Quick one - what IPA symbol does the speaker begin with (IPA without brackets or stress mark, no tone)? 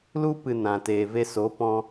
l